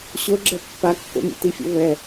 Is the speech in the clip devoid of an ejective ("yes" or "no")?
yes